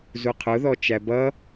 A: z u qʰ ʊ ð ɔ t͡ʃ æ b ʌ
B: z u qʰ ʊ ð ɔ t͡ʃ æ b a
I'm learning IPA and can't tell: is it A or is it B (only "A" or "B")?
A